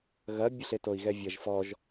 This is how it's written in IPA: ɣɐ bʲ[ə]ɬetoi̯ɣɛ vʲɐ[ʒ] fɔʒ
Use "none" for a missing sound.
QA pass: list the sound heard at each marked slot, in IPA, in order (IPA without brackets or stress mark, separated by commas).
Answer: ə, ʒ